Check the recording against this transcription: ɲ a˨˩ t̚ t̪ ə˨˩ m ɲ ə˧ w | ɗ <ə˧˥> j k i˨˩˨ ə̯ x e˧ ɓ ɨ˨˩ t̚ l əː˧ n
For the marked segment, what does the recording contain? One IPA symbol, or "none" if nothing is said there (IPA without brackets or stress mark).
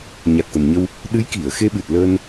ɨ˧˥